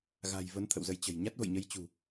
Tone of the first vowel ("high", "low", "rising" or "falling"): low